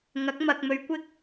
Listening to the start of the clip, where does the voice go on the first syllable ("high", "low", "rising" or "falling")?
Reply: rising